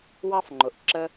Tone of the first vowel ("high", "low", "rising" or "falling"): high